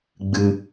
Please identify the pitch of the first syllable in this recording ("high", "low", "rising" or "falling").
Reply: low